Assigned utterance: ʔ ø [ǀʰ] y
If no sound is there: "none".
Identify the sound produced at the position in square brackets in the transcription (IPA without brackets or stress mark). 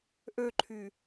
ǃʰ